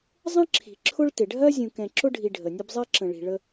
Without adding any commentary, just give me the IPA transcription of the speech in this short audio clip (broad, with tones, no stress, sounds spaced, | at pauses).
zˤ ə̃˥ ǁʰ i̤˩ ǁʰ ʊ˦ ɭ t ɪ˩ ɖʱ ɜ˥ zʲ ũ˨ k ɛ̃˨ ǁ ʊ˥ ɖʱ i˨ ɖʱ ə˩ nʲ ə˦ b zˤ ɛ˥ ǁ ə̃˨ ɭ i̤˨ ɭ ə˦